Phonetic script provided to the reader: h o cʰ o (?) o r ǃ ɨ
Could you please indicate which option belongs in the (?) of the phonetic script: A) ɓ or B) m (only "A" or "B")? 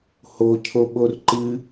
A